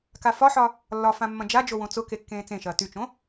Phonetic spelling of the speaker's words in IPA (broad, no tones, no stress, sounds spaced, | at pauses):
k a f ɒ ħ ɒ | lː ɒ f ã mː ɐ̃ d͡ʒ a d͡ʒ o w õ t͡s ʊ k e kː ẽː t͡s ẽ ʃ ɐː t y t͡ʃ õ